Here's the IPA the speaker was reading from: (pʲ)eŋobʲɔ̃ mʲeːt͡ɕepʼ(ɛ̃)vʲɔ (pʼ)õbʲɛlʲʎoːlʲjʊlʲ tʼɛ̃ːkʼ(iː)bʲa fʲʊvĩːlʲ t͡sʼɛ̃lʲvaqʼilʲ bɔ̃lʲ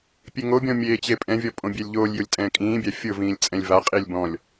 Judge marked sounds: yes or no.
yes, yes, yes, no

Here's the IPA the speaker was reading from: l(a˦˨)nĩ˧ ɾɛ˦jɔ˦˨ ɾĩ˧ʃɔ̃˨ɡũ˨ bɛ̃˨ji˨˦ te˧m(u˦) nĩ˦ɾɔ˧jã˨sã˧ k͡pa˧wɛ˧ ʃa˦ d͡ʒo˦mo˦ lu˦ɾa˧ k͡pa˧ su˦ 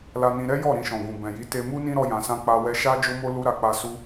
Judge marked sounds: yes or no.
no, yes

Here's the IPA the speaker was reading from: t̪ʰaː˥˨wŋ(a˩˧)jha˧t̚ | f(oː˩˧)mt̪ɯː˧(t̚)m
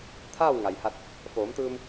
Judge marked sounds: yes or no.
no, yes, no

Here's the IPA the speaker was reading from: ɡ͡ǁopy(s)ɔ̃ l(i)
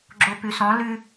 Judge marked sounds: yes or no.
yes, no

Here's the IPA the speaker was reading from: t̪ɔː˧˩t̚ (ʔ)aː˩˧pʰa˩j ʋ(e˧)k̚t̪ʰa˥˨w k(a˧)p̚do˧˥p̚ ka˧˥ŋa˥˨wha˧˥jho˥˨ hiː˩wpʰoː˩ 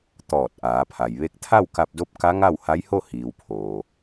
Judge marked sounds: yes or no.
yes, yes, yes

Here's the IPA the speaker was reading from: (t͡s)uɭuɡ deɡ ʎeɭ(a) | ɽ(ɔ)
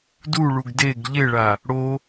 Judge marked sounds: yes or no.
no, yes, no

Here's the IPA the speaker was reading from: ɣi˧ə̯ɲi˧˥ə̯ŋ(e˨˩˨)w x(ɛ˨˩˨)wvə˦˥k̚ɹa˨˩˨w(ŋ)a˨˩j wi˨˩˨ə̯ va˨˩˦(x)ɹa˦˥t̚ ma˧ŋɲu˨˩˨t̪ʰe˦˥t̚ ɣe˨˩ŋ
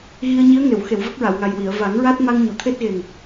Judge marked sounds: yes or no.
yes, no, yes, no

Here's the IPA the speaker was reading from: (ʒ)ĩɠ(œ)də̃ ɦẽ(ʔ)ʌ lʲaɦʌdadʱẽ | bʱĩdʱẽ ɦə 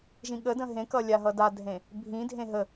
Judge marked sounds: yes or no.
yes, no, no

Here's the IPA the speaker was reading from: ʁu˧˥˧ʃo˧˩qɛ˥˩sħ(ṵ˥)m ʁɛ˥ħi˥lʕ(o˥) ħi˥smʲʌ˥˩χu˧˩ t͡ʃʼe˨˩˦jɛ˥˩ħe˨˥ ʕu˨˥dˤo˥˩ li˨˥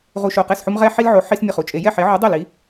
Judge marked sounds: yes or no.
no, no

